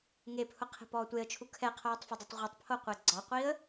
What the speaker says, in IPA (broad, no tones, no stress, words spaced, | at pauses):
ŋepʰʊ qʰe̤pɔːtʷeə̯t͡ʃʰu kʰɛqʰoːtˤfʊdˤɯtˤ ʁʷɛtˤpʰoqʷe ɡ͡ǀɒqʷiə̯